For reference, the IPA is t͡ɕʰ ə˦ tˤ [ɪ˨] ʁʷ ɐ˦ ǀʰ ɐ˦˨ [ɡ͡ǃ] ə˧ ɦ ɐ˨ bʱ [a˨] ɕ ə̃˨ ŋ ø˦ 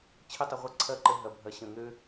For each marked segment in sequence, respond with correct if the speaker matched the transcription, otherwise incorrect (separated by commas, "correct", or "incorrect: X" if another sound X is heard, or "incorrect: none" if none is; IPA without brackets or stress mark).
incorrect: ɪ˧, incorrect: ǃ, incorrect: ɐ˨